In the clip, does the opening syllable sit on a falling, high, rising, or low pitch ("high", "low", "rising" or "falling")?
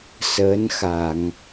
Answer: rising